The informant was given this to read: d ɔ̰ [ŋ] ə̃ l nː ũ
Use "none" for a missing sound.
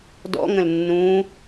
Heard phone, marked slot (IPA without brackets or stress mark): ŋ